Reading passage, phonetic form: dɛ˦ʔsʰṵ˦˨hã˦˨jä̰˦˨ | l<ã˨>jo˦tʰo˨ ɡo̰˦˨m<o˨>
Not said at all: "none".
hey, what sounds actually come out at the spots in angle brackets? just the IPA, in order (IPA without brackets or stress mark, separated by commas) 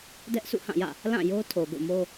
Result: ã˦˨, o˦